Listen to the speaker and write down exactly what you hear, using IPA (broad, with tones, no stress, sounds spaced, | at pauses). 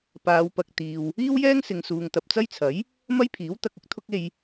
p aː˨˧ w p ɐ˨ k̚ t̪ iː˨ w | iː˥ w j ɛː˥ ŋ s ɪ˨ ŋ s uː˨ ŋ t̪ ɐ˨ p̚ t͡s ɐ˥ j t͡sʰ ɐ˨˥ j | m ɐ˥ j pʰ iː˨˥ w t̪ ɐ˧ k̚ ʊ˥ k̚ t̪ʰ ʊ˥ k̚ e˧ j